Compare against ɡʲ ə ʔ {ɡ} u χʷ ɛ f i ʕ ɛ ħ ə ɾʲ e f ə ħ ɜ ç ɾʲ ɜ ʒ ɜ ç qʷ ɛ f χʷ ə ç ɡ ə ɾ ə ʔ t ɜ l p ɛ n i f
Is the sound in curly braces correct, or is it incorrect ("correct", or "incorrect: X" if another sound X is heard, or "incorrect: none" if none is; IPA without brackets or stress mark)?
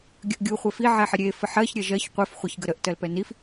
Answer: incorrect: ɡʲ